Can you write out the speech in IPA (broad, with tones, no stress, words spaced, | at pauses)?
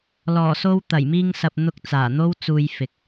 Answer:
lɔː˨˩ so˧w t̪ɐ˨˩jmiː˧ŋsɐ˨p̚ n̪ʊ˧k̚ t͡saː˨˩ n̪o˥wt͡suː˧j fɪ˨k̚